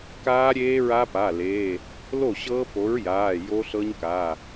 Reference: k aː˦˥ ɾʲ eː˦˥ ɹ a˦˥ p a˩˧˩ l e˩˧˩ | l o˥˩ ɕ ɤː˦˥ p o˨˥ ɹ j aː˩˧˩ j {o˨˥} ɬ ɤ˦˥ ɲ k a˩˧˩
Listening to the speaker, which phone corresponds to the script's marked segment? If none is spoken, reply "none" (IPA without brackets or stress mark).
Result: o˦˥